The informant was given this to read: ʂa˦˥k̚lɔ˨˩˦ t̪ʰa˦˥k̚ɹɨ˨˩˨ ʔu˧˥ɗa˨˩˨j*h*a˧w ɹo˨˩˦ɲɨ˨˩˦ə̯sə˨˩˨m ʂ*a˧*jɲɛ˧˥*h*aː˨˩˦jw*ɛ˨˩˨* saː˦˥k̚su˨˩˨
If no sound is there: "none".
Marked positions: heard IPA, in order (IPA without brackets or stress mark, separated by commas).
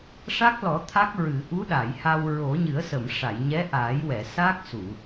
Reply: h, a˨˩˨, ʔ, ɛ˨˩˨